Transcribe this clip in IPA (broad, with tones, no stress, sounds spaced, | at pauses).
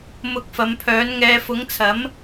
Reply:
m ʊ˨˥ k̚ f ɐ˨˧ m pʰ œː˨˥ n ŋ ɛː˧ f ʊ˨˥ ŋ t͡sʰ ɐ˨˥ m